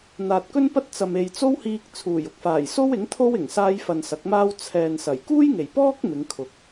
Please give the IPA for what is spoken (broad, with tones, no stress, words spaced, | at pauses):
n̪aː˨t̚ kɵ˥npɐ˥t̚ t͡sɐ˨me˨jt͡so˥whiː˧k̚ t͡sʰuː˨˩jʊ˧k̚faː˨˩jso˥w ɪ˨˥ŋt̪ʰo˥wɪ˨˩ŋ saː˥jfɐ˧nsɐ˨˥k̚maː˥w t͡sʰɛː˨n sɐ˨˩j kuː˥jŋe˨˩jpɔː˥k̚ mɪ˨˧ŋkʰʊ˨k̚